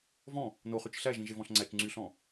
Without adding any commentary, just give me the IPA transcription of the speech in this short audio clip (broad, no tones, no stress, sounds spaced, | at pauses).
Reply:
v ɔ̃ | n o χ y t͡ʃ ɬ æ ʒ ĩ ʒ e v ɔ̃ ɬ ŋ͡ǀ æ t͡ʃ ŋ͡ǀ y ɬ ɔ̃